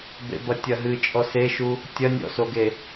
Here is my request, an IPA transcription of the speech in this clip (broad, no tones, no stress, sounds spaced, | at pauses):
b ḛ b ɐ tʲ ɐ ɦ ɨ t͡ʃʼ ɔ s e ʃ u | tʲ ɐ nʲ ɔ̰ s o ɡ e